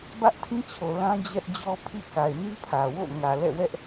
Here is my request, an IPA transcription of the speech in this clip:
b ä˦ ʔ tʰ ĩ˦ t͡ɕʰ o˨ l ã˦ d͡ʑ ɛ˦ ʔ d͡ʑ ɔ˦ pʰ ḭ˦˨ k a˨ ɪ̯ n i˦ pʰ ä˨ w o̰˦˨ ŋ ä˨ l ɛ̰˦˨ w ɛ˦ ʔ

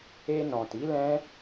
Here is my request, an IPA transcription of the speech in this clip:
e˧ n ɔ̃˨ t i˨˦ l ɛ̃˦

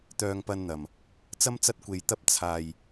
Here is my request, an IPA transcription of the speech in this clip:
t̪ œː˧ ŋ p ɐ˧ n n̪ ɐ˨ m | t͡s ɐ˥ m t͡s ɐ˥ t̚ kʷ e˧ j t̪ ɐ˧ p̚ t͡sʰ aː˨ j

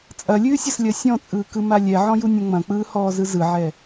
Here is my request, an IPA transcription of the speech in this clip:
t͡sʼ ɐ lʲ ʉː sʲ ɐ s lʲ ɐ sʲ ɔ̃ t͡sʼ ɯː k ɯ m a lʲ ɛ ʕ ɔ̃ j u nʲ ɐ̃ ŋ͡m ɐ̃ k͡p ɯː h ɔː z ɯ z ɯ ʕ ɛ

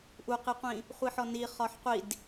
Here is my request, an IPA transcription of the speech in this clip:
ʔ u q i qʷ ĩ | χʷ i ħ ɔ n i χ ɒ ħ qʷ i d

